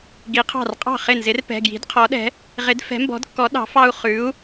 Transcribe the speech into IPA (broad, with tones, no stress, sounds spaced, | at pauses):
ɡ i˨˥ qʰ ɑ̤˥˩ r qʼ ɑ̤˥˩ χ ɪ˥˩ n z ɪ˨˥ r p ɛ̤˩˧˩ ɡ j i̤˨˥ d qʰ ɔ˨˥ ɗ ɛ̤˨˥ | ʁ ɪ˨˥ d f ɛ̤˨˥ m b ɔ̤˨˥ d kː ɔ˨˥ ɗ ɑ̤˨˥ f ɑ˦ u̯ χ ʉ˨˥ u̯